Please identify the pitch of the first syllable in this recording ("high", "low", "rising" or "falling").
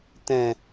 low